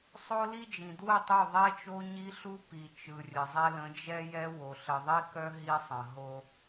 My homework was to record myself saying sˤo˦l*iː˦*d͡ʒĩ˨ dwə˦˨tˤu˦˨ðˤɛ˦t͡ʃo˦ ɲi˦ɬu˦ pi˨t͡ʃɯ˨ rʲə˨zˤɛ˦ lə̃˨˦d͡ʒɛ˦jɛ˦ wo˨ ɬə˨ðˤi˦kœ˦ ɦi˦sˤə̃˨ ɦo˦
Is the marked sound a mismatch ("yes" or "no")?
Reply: yes